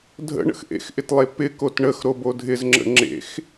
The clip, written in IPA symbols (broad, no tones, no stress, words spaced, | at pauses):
dʱə̰ ɳə̰xʔḛxʔɪtlˠe pɪ kotɳəx ɾobodʱɪzŋ͡ǁə̰ ŋ͡ǁḛx